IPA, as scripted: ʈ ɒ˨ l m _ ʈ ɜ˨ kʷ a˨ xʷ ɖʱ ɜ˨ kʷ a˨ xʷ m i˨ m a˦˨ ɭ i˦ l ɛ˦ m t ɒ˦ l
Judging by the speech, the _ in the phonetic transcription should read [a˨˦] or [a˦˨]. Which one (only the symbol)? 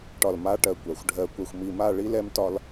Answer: a˨˦